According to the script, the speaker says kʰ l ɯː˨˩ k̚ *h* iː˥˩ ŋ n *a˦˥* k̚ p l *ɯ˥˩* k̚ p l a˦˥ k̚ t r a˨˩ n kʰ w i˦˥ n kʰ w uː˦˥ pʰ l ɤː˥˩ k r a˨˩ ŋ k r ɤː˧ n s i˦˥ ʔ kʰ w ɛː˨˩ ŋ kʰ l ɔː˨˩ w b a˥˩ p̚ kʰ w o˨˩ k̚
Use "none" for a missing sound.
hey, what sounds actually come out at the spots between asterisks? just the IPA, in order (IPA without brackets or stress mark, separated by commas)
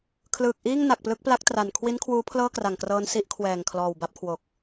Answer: ʔ, a˨˩, ɯ˦˥